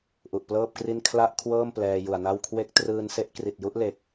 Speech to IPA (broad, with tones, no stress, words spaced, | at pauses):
ʔu˨˩ʔplɤː˥˩p̚kri˥˩n kʰla˥˩ʔkʰwɤː˥˩m plɛː˧ju˨˩a̯na˥˩w kʰwe˦˥k̚ trɯː˧nse˦˥ʔ kri˨˩t̚ju˦˥ʔ le˨˩k̚